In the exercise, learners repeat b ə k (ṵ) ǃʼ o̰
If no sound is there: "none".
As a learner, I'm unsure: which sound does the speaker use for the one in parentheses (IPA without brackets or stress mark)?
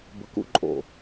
ṵ